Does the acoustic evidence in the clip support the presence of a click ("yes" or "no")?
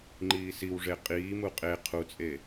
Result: yes